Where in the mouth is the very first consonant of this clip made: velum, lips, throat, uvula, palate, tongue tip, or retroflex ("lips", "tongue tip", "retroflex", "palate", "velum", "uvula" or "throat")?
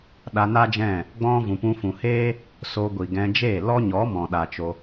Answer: tongue tip